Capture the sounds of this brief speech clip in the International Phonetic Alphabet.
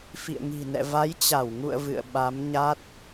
fḭ˧˨ə̯ŋi̤˨˩nɛ̰˧˨ va˨˦jt͡ɕa˧˩wŋṵ˧˨ə̯ vɨ̰˧˨ə̯ɓa˨˦mɲa˦˥t̚

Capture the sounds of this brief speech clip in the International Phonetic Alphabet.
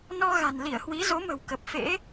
nɔ˧ɣa̤˨˩n li˧˩ə̯hwi˨˦zo˨˦mə̤˨˩w kə˨˩p̚fḛ˧˥

